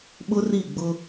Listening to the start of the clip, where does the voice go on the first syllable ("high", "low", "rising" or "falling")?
high